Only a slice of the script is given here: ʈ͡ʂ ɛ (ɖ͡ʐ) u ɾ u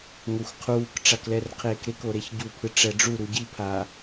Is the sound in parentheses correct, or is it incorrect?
correct